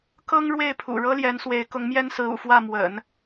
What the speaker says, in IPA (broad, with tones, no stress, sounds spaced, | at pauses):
k ɤ˥ ŋ ɻ w e˥˩ ɪ̯ pʰ ṵ˨˩ ɻ ɤ˥ l j ɛ˧˥ n s w e˧˥ ɪ̯ k ʊ˧˥ ŋ m j ɛ˥ n s ɹ̩˧˥ ṵ˨˩ f w ä˥˩ m w ə̰˨˩˦ n